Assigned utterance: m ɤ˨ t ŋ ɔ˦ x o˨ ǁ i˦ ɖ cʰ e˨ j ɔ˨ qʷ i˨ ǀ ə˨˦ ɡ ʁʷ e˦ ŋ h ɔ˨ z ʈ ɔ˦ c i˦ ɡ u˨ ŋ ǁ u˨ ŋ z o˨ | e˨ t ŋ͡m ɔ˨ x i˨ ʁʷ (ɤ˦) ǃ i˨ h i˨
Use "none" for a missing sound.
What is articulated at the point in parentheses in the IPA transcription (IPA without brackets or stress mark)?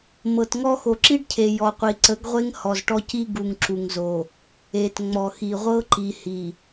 ɤ˦